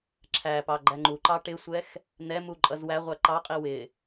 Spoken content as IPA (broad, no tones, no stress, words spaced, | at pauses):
ǁʰæpɑ ɡ͡ǃæŋ͡ǃuǃɑ ʈɪsʷɛx | n̪ɛmu ǃʼʌzwæʁʷæ ǃɑqʼi wɪ